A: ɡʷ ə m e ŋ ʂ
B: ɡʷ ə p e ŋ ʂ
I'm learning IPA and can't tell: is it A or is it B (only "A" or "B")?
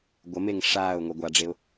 A